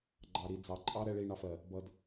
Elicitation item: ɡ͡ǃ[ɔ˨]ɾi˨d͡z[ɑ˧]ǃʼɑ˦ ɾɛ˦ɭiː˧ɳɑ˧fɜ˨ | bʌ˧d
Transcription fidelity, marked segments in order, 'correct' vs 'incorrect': incorrect, incorrect

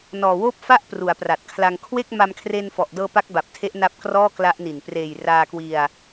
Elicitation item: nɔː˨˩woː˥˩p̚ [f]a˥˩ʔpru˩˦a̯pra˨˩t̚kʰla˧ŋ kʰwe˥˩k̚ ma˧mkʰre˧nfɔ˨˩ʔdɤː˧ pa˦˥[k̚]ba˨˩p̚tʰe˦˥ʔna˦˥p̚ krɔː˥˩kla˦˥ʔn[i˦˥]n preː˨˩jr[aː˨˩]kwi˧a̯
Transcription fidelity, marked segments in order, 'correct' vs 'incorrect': correct, correct, incorrect, incorrect

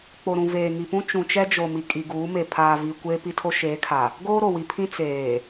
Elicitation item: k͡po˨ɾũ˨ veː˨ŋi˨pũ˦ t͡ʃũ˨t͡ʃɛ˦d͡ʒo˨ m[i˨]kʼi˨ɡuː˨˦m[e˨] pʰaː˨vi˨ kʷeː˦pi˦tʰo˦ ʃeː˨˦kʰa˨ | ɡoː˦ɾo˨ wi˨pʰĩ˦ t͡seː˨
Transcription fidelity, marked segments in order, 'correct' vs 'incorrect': correct, correct

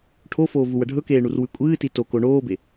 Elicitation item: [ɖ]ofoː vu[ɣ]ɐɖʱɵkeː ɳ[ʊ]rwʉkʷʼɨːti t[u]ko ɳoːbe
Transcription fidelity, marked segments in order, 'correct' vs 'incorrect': incorrect, incorrect, incorrect, incorrect

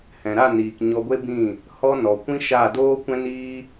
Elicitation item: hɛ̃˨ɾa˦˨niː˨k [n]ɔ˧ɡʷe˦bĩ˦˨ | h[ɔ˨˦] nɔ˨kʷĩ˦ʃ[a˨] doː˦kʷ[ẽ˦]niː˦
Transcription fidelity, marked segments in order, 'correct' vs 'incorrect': incorrect, incorrect, incorrect, incorrect

